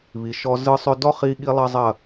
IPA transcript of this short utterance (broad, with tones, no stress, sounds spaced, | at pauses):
β i˨ ʃ ɔ˧ z ɯ˧ sˤ ʏ˧ d ɔ˦ χ i˧ ɠ i˦ lˠ ɐ˦ zˤ ɐ˦˨